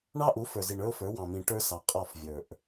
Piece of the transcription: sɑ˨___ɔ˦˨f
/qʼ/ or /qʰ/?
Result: qʼ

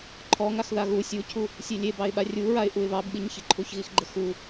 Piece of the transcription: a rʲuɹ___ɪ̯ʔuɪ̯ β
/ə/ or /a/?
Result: a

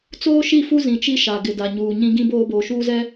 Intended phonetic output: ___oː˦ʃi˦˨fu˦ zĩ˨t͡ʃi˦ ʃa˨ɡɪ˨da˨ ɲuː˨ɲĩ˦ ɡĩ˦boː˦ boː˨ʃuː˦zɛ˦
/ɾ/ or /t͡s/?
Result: t͡s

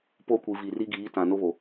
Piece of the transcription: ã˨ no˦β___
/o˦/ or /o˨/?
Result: o˨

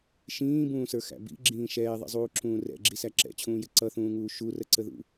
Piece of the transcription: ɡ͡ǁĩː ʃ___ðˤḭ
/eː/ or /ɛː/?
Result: ɛː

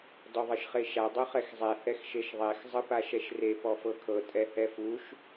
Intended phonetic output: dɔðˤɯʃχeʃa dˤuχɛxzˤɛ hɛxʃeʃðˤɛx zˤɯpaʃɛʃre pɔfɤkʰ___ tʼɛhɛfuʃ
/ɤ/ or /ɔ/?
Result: ɤ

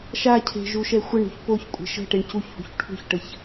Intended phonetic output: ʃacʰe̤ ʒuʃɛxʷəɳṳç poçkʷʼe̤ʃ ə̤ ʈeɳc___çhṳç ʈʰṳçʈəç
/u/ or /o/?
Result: u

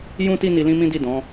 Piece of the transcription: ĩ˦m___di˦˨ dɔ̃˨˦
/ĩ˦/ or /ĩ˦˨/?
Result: ĩ˦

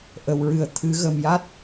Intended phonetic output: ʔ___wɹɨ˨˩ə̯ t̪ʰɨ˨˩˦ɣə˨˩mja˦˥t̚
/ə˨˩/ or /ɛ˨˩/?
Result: ə˨˩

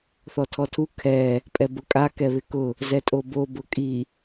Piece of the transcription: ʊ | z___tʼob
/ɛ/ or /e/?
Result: ɛ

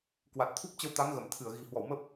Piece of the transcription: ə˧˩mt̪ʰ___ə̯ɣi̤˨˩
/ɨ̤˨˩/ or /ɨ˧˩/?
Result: ɨ˧˩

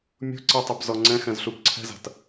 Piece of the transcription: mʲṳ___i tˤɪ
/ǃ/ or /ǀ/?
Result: ǀ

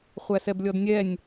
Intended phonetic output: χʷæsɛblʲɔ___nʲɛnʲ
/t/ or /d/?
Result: d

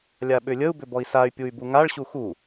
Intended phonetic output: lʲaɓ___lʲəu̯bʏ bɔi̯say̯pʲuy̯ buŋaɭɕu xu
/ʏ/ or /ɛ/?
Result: ʏ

